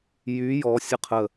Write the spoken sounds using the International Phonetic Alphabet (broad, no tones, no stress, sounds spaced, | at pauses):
j y j ɔ sʲ ə qʰ ə